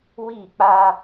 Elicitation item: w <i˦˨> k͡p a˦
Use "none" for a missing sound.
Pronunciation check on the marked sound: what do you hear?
i˦˨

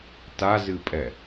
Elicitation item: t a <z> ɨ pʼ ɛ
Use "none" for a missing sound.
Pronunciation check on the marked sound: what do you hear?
z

